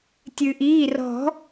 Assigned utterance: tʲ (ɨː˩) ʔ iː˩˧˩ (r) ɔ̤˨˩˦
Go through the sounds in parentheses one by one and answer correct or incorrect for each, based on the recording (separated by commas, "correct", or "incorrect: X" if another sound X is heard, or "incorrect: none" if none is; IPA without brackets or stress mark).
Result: correct, correct